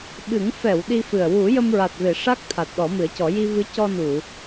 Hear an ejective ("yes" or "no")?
no